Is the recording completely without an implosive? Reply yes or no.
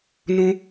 yes